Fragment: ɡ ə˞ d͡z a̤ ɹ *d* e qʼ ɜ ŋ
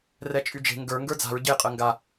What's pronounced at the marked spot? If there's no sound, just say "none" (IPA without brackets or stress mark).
ɟ